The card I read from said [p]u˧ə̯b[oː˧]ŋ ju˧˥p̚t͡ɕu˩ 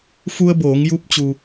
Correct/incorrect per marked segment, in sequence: incorrect: f, incorrect: oː˩˧

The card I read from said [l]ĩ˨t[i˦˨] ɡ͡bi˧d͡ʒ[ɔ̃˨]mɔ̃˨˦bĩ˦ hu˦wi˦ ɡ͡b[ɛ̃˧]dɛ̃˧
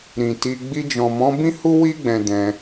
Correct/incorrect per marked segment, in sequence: incorrect: ɾ, incorrect: i˧, correct, correct

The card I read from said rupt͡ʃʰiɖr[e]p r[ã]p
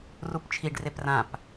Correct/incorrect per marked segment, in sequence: correct, correct

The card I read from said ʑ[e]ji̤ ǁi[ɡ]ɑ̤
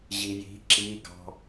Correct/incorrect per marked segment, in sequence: incorrect: i, correct

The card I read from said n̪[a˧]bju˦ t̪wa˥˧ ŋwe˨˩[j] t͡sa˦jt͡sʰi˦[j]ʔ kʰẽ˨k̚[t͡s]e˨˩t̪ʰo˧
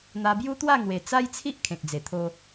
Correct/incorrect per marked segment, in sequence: correct, incorrect: none, incorrect: none, incorrect: d͡z

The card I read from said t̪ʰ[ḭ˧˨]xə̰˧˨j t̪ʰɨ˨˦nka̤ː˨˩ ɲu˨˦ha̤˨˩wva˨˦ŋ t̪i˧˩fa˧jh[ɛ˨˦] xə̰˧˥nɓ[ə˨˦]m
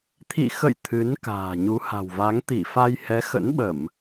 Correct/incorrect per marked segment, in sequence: correct, correct, incorrect: ə˧˩˨

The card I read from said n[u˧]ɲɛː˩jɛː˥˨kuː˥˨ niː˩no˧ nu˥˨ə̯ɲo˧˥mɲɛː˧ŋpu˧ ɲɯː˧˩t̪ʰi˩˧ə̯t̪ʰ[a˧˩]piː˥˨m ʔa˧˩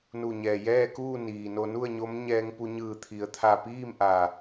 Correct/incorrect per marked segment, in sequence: incorrect: u˧˩, correct

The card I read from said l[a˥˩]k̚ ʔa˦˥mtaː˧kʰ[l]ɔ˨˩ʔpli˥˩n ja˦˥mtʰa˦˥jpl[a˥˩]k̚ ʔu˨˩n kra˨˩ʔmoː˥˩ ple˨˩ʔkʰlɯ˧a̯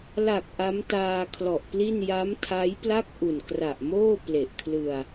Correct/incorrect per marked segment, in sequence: incorrect: a˨˩, correct, correct

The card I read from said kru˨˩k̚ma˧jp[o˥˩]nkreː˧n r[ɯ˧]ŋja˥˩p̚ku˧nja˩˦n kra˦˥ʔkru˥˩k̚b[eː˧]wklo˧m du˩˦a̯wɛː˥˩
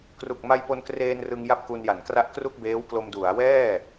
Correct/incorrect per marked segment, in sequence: incorrect: o˧, correct, incorrect: eː˦˥

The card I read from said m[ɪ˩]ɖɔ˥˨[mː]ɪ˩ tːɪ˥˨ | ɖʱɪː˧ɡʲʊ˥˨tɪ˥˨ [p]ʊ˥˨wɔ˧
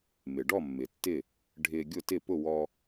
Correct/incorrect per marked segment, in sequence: correct, correct, correct

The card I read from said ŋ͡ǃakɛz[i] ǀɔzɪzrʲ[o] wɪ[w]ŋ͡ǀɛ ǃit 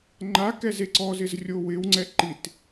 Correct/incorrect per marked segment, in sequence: incorrect: e, correct, correct

